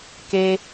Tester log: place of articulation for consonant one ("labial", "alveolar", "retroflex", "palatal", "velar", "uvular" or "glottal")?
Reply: velar